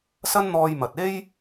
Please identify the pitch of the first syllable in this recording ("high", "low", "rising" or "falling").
high